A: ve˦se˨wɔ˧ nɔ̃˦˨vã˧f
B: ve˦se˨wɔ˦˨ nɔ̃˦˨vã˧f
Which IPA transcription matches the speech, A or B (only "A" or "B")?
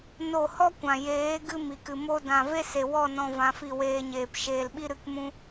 B